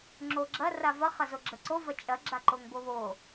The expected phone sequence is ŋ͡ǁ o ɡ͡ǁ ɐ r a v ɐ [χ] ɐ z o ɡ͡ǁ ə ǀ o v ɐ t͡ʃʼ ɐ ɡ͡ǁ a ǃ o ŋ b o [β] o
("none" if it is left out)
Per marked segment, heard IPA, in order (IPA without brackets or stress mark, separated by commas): χ, β